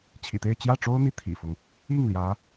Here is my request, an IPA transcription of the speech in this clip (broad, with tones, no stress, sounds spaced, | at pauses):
t͡ɕʰ ḭ˨˩ t̪ e˥˧ ɪ̯ t͡ɕ j ä˥˩ ʈ͡ʂ o˥ ʊ̯ n̪ i˧˥ t̪ʰ ḭ˨˩ f ʊ˦ ŋ | i˥˩ ŋ l j ä˧˥